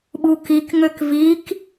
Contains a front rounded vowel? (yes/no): yes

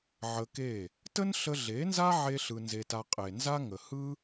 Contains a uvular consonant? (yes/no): yes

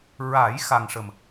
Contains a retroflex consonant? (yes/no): yes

